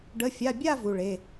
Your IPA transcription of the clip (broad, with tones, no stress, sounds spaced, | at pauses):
ɖ ə˧˥˧ fʲ a˧˥˧ bʲ a˥˧ v u˧˥˧ ɭ e˧˥˧